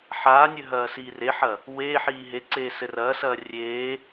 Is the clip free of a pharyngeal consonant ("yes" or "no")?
no